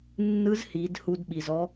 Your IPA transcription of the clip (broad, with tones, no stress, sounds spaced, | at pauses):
nː ɯ˧˥ z h i˩˧ d h u˧ d ɓ i˩ z ɔ˧˥